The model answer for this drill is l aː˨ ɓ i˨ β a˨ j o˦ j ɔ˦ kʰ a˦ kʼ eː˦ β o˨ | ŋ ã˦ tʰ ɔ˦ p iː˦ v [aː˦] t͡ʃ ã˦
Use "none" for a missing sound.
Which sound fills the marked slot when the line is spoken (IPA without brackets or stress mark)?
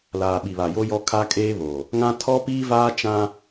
aː˦